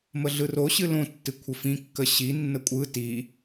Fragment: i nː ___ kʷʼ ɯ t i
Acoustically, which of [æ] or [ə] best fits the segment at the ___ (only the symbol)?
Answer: ə